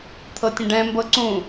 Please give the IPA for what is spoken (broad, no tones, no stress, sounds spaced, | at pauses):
t̪ʰ ɤ tʲ ə̃ ɖ ɛ̃ m b ɤ ǀ ũ